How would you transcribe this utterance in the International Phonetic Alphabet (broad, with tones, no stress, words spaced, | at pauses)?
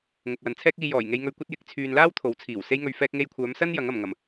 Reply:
ŋʊ˨k̚wɐ˨nt͡sʰɛː˥k̚ iː˧jɔː˨˩j ŋe˧jŋɵ˧ɥkʷɐ˥t̚ jɪ˨˥k̚ t͡sʰyː˨nlaː˥w t̪ʰo˨˥wt͡sʰiː˨˩w se˧jŋɵ˨ɥ fɛː˧k̚ŋe˧jkʷʰœː˨˧msɐ˥n jɐ˨˥ŋɐ˨˩mŋɐ˨˩m